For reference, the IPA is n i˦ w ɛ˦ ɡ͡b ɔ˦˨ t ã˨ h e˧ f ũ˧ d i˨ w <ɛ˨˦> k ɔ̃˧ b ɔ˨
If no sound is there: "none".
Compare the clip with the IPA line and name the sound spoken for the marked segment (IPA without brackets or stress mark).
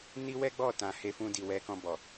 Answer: ɛ˨˦